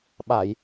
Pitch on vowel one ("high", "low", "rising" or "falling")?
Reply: low